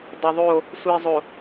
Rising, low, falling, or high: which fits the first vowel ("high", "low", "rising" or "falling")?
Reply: low